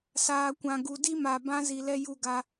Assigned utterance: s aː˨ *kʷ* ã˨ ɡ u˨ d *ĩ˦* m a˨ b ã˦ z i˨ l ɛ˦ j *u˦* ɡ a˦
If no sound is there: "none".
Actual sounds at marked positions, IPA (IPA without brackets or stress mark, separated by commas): kʷ, i˦, u˦